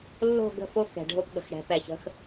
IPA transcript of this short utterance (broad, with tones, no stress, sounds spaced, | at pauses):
lː o̤˦˨ ɡ ə̤˦˨ f o˦ k ɛ̤˨ ɖʱ o˦ p ɠ ə̤˨ x ɽ ɛ̤˨˦ p ɛ˨ ç ə̤˦ x